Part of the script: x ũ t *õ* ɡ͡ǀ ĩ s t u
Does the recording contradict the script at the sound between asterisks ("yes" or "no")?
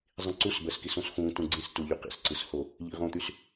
yes